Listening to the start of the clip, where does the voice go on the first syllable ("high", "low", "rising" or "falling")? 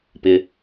low